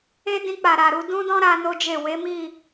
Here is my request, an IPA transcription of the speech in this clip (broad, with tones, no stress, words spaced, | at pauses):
e˦dĩ˧ k͡pa˨ɾa˨ɾu˧ dũ˦dɔ̃˦ ɾa˦no˦d͡ʒe˦˨ we˨˦mi˦˨